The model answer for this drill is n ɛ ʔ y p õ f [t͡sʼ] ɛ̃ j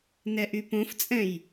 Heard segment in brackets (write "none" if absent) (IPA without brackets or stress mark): t͡sʼ